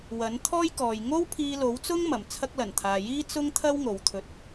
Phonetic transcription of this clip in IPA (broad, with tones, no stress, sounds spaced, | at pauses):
w ɐ˨˥ n t̪ʰ ɔː˥ j k ɔː˨ j ŋ o˥ w pʰ iː˧ l o˨˥ w t͡s ʊ˥ ŋ m ɐ˨˩ m t͡sʰ ɐ˥ k̚ l ɐ˨˩ n t̪ʰ aː˨ j iː˥ t͡s ʊ˥ ŋ t̪ʰ ɐ˥ w ŋ o˨˧ w t̪ʰ ɵ˧ t̚